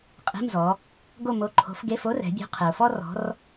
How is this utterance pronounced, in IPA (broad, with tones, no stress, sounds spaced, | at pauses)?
qʼ e̤˧˥˧ m z ɔ˩˧ | ɡ o˦˨ m o˨˥ ǃʰ o̤˨˥ f ɡ e˧˥˧ f o˥ r ɛ̤˩˧ bʲ o̤˨˥ qʰ ɛ˩ ʊ̯ f ɔ˥ r ɔ̤˨˥ r